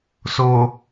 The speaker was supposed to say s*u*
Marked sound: incorrect: o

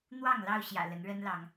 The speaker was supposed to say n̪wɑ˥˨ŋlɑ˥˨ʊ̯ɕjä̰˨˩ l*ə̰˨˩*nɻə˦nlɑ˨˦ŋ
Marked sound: incorrect: ə˨˦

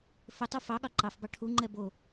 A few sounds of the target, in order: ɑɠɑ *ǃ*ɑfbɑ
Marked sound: correct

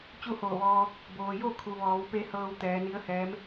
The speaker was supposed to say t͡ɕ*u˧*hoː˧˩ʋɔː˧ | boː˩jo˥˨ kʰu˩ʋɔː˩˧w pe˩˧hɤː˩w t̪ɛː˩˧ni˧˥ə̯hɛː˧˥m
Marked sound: incorrect: u˥˨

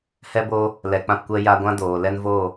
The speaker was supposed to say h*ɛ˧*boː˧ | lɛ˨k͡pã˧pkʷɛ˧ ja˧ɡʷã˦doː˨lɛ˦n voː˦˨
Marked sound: correct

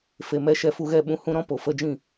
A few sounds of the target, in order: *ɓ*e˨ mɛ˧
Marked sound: incorrect: f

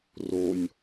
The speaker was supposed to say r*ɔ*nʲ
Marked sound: incorrect: o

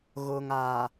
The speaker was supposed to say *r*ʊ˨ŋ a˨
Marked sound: incorrect: ɣ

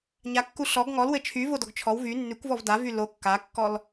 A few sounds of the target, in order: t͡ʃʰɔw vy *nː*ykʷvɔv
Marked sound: correct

